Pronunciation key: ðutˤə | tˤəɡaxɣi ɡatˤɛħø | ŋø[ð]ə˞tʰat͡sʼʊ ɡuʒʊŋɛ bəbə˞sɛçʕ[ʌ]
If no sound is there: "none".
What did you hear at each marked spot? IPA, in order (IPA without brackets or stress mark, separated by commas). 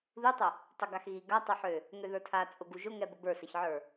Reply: ð, ə˞